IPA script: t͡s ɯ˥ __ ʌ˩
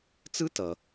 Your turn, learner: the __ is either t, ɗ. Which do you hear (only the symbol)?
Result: t